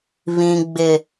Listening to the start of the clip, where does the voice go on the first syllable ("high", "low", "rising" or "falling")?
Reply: low